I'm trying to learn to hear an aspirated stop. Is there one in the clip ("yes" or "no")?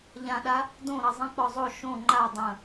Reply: no